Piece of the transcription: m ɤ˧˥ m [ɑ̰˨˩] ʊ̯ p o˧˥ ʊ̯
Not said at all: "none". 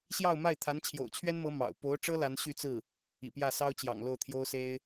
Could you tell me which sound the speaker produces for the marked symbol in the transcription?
ɑ̰˨˩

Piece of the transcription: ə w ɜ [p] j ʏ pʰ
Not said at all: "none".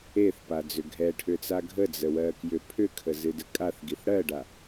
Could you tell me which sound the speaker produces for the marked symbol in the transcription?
k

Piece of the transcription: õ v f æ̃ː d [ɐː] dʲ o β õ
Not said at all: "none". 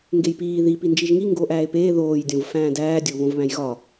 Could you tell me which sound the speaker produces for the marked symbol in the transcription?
æː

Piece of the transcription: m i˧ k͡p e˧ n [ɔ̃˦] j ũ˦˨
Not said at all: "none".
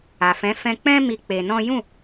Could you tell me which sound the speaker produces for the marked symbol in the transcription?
ɔ̃˦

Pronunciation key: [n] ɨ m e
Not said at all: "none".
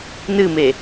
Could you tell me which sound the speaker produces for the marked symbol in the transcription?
n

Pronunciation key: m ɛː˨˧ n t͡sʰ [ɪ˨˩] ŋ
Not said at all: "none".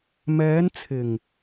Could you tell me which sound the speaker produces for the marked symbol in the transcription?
ɪ˨˩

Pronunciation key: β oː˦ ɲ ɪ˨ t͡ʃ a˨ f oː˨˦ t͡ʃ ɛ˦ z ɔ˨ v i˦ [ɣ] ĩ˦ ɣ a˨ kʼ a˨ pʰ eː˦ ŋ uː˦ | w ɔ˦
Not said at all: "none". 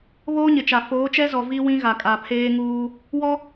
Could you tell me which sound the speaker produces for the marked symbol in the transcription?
w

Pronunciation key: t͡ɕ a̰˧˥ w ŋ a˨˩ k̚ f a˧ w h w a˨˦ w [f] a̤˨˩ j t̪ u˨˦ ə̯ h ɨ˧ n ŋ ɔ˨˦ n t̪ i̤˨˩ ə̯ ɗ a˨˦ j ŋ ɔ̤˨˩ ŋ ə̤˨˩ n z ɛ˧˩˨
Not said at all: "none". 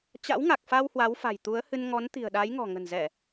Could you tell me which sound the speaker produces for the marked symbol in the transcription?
f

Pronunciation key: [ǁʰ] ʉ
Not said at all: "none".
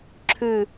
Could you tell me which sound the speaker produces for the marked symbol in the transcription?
ǁʰ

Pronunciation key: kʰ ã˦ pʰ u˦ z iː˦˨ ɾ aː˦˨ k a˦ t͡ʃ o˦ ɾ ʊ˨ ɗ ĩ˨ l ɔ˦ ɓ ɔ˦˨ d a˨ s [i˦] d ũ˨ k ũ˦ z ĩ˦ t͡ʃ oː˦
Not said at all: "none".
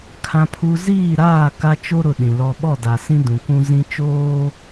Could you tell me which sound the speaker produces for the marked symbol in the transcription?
ĩ˦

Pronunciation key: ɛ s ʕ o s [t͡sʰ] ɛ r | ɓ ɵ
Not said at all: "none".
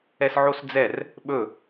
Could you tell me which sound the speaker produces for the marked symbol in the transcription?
d͡z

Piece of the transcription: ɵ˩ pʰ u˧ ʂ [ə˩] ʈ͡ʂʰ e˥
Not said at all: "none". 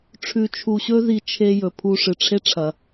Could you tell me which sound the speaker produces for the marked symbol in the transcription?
ɨ˩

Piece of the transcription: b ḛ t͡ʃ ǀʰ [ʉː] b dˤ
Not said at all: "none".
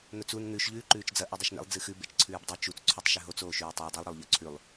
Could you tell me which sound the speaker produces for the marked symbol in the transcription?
ʉː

